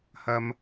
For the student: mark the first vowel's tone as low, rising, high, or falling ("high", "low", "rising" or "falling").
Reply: high